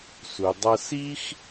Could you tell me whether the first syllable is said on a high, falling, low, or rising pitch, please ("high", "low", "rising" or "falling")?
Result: low